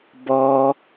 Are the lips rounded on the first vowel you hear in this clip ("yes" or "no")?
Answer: yes